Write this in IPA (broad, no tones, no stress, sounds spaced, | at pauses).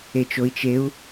e t͡ʃ o i̯ t͡ʃ e u̯